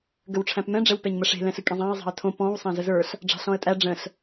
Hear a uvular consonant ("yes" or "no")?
no